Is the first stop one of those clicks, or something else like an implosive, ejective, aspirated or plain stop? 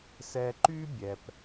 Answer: click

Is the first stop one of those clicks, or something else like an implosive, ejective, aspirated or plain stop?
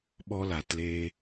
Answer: implosive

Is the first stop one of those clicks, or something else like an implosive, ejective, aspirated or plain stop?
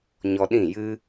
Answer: implosive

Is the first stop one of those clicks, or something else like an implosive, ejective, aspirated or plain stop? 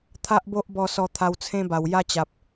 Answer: aspirated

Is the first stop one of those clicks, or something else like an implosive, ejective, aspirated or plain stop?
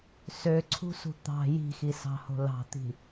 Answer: click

